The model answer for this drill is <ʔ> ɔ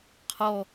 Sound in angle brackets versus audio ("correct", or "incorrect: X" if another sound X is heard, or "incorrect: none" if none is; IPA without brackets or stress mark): incorrect: qʰ